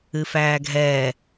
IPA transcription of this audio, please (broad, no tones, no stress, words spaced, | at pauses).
ɨfæːɡʱɛː